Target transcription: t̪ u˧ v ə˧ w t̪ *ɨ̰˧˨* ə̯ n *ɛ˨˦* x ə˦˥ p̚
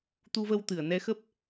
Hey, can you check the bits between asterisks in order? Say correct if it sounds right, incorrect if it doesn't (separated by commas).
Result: incorrect, correct